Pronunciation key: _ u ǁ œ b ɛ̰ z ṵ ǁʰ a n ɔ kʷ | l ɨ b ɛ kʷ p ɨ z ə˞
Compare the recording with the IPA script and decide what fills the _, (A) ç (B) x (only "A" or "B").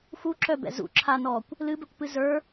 B